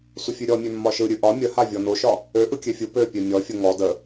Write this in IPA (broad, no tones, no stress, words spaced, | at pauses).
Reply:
sʷəfʲʉɾʲɔmʲø mːɒʃɯ ɾʲʉʔɒ mʲəha vʲɔnoʃɒ | ø ʔɯkʲøfʲɯ pø pʲømʲɔfʲə ŋɔ də